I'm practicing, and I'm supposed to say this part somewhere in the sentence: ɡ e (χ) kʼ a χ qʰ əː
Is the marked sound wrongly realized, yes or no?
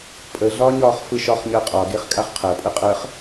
no